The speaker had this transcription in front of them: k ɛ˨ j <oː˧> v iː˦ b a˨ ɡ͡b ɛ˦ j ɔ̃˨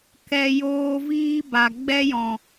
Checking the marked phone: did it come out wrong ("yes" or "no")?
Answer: no